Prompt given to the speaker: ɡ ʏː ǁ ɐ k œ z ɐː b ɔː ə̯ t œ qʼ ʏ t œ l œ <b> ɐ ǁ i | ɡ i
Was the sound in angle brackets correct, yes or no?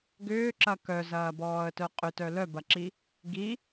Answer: yes